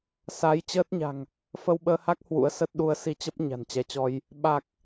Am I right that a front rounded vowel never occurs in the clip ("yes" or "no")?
yes